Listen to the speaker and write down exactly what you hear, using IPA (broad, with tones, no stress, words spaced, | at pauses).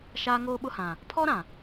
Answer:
ʃaː˦ŋoː˦ɓʊ˦hã˨ | pʰɔ˦ɾã˨